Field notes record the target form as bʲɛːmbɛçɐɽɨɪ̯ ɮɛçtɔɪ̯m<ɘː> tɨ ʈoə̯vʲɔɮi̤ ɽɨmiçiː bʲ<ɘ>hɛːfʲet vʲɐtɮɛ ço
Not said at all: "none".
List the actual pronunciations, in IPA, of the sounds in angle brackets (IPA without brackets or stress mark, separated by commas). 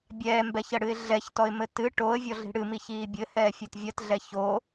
ɘ, ɘ